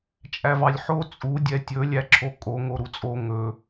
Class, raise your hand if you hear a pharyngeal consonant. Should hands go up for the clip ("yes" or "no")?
yes